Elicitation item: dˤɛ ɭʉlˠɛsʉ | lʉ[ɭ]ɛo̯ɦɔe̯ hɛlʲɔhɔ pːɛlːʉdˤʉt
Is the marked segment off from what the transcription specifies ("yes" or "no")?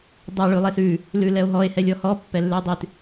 yes